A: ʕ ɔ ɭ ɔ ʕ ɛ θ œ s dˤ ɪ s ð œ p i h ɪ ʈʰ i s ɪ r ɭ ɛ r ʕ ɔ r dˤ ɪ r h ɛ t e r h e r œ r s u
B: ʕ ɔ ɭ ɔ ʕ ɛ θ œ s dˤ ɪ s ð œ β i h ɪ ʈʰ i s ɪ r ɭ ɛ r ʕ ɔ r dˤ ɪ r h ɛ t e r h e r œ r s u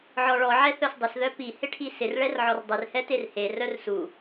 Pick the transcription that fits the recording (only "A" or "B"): A